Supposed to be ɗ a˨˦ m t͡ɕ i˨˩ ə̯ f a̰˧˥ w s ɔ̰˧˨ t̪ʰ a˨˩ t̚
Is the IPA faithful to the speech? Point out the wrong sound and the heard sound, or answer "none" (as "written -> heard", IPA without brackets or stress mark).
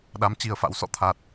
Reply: none